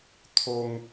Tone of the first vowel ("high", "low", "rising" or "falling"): high